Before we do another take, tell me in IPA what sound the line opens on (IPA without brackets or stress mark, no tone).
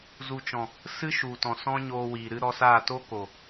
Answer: z